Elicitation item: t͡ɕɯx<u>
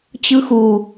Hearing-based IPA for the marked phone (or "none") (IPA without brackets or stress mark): u